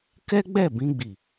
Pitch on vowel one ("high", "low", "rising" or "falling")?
high